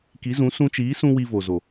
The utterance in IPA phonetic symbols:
k i˨˦ z ũ˨˦ s ũ˧ t͡ʃ iː˨˦ s ũ˧ w i˧ v o˨ z o˨

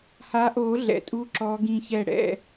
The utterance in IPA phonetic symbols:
h a˨˦ ʔ o˨˩˦ ɮ ɛ̰˩ tʼ u˨˦ ǁ ɔ˨˦ ɡ ĩ˧˩ ç ɛ˧˩ ɽ ɛ̰˥˩

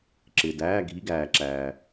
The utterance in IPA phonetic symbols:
ǁ ɪː˨ d æː˧˥˧ ɡʱ i˧˥˧ ɡ æː˨ ǁ æː˨

